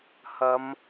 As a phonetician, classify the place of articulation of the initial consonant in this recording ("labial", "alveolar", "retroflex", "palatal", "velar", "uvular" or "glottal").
glottal